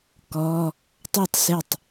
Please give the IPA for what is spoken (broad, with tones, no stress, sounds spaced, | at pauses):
k ɔ˧˥˧ | tˤ u˥˩ tˤ s ɪ˥˩ tˤ